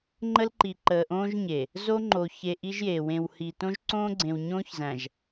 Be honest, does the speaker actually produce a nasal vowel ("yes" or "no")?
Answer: yes